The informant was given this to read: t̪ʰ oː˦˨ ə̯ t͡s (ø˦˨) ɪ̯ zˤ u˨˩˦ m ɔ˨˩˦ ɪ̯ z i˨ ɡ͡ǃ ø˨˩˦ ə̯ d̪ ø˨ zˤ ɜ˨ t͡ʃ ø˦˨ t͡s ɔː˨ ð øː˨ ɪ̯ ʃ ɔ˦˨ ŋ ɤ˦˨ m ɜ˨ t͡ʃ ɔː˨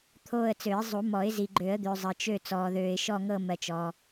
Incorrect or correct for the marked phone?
incorrect: ø˨˩˦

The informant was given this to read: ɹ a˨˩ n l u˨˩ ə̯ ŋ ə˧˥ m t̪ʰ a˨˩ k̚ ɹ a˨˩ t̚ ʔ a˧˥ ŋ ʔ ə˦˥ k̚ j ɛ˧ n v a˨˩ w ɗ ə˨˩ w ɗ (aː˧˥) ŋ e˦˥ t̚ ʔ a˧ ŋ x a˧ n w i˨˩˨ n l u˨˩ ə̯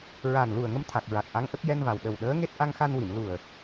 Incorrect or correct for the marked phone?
incorrect: əː˧˥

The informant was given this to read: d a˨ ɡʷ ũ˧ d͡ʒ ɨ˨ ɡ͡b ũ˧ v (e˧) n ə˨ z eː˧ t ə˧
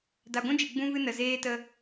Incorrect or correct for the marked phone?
incorrect: ɨ˧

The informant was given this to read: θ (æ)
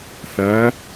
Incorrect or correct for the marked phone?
correct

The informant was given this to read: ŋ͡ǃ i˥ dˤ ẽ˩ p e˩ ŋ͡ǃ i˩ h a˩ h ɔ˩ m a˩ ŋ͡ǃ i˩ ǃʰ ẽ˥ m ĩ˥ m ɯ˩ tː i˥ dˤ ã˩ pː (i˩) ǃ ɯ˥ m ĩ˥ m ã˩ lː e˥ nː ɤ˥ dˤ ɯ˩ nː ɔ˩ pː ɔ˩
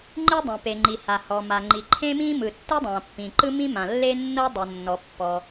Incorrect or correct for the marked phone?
incorrect: ĩ˩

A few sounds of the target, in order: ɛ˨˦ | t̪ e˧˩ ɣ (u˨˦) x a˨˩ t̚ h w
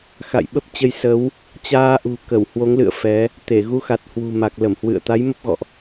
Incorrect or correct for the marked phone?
correct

